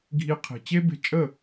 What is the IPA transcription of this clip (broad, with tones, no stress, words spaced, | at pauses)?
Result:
ɡʱi˧qʰi̤˨ t͡ɕe˦be̤˧t͡ʃʼə˦˨